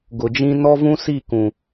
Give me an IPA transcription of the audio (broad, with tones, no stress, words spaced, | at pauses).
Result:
ɡʊ˨d͡ʒĩ˦ nɔ˦vũ˦si˦˨kũ˨